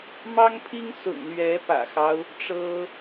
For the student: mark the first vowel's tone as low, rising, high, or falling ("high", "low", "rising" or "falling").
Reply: high